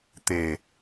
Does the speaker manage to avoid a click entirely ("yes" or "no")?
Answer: yes